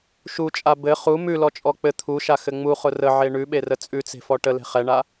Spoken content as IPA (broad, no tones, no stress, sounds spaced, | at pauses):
ʃ u t͡ʃʼ a b ɘ χ u m ʉ l ɔ t͡ʃʼ ɔ k͡p ɘ t̪ʰ u ʃ a x ɘ ŋ͡m u χ ʊ r ə ʕ e ɳ ʉ ɓ e r ə t͡sʼ ʉ t͡s e̤ f ɔ ʈ ə l e̤ χ ɛ ɳ a